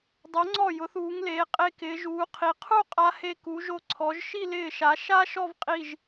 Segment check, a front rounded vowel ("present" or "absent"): absent